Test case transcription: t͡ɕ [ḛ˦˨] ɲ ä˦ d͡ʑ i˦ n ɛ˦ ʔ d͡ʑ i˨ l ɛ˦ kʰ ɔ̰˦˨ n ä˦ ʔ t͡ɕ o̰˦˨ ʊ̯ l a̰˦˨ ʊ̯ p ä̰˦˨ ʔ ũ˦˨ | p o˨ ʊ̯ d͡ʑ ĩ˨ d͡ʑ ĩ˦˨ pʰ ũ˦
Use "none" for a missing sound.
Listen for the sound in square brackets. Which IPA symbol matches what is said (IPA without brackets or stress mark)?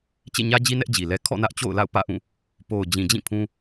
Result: ḛ˦˨